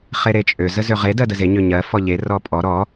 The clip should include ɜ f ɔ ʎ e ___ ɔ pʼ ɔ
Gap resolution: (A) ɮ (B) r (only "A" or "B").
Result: B